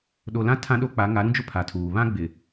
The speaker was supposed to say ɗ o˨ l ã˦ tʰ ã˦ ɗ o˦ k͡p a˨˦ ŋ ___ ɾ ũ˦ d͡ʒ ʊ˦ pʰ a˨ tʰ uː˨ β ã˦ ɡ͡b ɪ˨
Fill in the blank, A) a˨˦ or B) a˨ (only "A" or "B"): A